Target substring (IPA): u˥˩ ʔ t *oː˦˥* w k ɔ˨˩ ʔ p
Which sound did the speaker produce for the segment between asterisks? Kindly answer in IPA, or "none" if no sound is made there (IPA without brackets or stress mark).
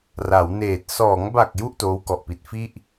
oː˦˥